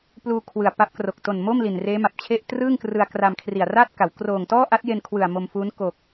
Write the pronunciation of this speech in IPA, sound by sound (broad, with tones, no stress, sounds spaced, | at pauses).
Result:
p l uː˧ kʰ w ɯ˨˩ a̯ p a˦˥ p̚ k r o˨˩ k̚ t o˨˩ n m o˥˩ m l i˨˩ n r eː˦˥ m a˨˩ p̚ t͡ɕʰ e˥˩ ʔ t r ɯː˥˩ ŋ k r ɯ˧ a̯ k r a˧ m kʰ r i˨˩ a̯ r a˥˩ t̚ k a˩˦ w k r oː˨˩ ŋ t ɔː˥˩ ʔ a˦˥ t̚ j e˧ n kʰ w ɯ˨˩ a̯ m o˧ m f uː˦˥ n k o˨˩ k̚